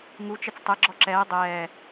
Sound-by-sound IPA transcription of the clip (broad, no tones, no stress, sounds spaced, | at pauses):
ŋ u t͡ʃ ɛ t͡s tˤ ɛ ɡ͡ǁ ɔ ǁ ɛː dˤ ɛː